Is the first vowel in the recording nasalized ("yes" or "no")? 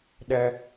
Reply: no